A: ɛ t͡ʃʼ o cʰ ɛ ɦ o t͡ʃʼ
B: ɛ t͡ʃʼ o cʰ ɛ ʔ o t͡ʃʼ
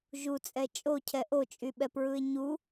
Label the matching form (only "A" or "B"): B